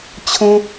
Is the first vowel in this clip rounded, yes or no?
yes